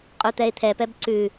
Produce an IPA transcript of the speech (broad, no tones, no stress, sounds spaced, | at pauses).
qʼ u t̪ ɛ ɪ̯ t̪ʰ ɛ p ɛ b ǀ ʉ